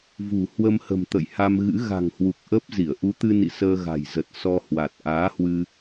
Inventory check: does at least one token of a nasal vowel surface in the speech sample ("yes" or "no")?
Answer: no